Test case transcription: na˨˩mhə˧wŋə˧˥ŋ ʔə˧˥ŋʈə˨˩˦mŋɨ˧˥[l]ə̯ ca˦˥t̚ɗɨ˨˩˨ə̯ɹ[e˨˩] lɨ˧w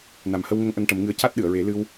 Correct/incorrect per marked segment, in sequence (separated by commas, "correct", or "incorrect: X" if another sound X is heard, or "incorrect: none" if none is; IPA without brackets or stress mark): incorrect: none, incorrect: e˨˩˦